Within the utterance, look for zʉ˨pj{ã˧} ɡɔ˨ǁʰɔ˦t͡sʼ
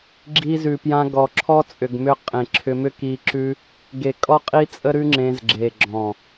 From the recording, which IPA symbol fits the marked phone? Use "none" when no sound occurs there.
ã˧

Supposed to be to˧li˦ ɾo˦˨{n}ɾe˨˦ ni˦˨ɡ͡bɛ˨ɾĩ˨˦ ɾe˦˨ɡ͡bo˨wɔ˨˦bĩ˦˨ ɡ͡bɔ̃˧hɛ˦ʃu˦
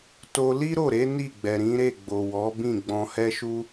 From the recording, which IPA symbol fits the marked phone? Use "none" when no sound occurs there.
none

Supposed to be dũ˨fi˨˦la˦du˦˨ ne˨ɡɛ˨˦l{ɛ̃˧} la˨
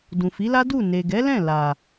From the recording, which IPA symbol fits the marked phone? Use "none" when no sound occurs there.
ɛ̃˦˨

